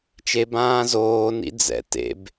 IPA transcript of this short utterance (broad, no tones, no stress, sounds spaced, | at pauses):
t͡ʃ e b ãː z oː n ḭ d͡z ɛ̰ t ḛ b